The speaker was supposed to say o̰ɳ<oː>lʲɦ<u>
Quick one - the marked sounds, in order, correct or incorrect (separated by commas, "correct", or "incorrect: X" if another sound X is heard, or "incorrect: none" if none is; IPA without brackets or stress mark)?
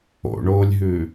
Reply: correct, incorrect: ʉ